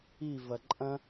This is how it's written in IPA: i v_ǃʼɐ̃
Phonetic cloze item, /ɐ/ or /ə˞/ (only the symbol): ɐ